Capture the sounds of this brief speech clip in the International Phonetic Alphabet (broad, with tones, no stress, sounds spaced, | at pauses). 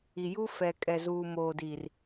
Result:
i˨ j u˦ f ɛ˨ kʼ ɛ˨ z uː˨ m oː˨ d i˨ r